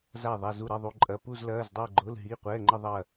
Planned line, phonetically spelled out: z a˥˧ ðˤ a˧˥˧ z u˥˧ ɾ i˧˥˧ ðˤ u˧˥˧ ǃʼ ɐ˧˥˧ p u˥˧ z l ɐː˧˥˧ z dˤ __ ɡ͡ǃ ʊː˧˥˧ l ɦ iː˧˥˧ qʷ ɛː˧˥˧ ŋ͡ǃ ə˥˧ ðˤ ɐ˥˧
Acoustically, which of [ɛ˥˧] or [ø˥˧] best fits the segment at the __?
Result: ɛ˥˧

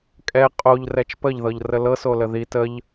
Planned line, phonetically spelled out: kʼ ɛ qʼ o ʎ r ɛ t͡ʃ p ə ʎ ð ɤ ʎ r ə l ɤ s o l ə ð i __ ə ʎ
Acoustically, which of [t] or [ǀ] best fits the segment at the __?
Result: t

